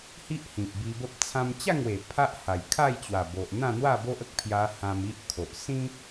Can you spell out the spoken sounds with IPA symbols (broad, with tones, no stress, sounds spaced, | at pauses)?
h i˦ ʔ h ĩ˨ p̚ b i˧ b ə˦ p̚ t͡sʰ ã˧ m t͡ɕ a˥˧ ŋ w e˨˩ pʰ a˦ ʔ h a˨˩ j kʰ a˥˧ j t͡ɕ w a˨˩ b o˨ ʔ n̪ ã˥˧ n̪ w a˥˧ b o˦ ʔ ə˦ k̚ pʰ j a˧ h ã˧ m i˦ ʔ kʰ o˨ ʔ s ĩ˦